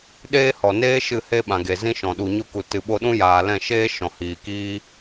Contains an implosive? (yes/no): yes